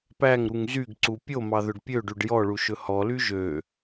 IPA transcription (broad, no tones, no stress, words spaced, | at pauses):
pæŋɾuŋ zyɡǀu pʲomɑ ðɵɖpʲøɖyɖ jɔɭu ʃɵhɔly ʒø